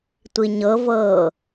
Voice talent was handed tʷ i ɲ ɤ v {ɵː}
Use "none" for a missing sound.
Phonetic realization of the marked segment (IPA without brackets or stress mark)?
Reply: ɤː